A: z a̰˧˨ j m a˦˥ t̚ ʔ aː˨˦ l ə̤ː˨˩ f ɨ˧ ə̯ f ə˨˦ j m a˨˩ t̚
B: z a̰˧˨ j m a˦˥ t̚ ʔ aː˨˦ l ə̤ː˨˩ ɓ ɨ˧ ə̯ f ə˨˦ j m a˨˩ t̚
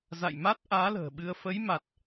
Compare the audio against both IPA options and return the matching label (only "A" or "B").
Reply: B